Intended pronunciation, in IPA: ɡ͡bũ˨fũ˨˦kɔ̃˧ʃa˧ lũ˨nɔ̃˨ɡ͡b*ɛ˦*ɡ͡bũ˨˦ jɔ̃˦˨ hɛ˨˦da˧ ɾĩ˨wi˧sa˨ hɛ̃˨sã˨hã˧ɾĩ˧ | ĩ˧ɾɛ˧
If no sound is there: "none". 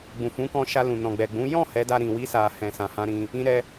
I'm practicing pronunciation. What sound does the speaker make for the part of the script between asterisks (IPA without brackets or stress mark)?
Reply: ɛ˨